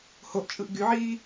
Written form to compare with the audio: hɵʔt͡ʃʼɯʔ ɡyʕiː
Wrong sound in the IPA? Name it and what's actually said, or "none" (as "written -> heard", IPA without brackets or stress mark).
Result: ɵ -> o